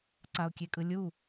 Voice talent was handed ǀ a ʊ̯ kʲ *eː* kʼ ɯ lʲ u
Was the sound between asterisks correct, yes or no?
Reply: no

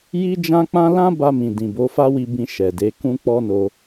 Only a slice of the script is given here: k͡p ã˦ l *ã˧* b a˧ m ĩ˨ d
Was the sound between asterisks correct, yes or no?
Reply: no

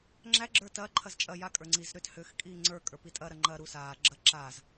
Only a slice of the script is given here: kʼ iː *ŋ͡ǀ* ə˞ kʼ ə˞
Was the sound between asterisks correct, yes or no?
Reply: yes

